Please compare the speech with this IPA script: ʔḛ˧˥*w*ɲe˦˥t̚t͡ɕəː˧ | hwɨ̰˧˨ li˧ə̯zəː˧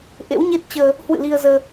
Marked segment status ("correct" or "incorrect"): correct